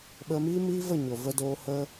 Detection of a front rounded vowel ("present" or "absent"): absent